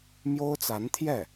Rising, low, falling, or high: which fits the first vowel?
high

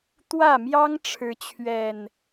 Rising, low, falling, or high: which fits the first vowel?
falling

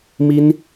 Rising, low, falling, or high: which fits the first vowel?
high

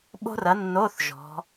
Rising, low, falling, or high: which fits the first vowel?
high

